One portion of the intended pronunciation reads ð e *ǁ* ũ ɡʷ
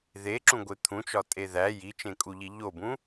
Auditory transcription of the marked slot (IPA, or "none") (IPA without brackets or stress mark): ǁ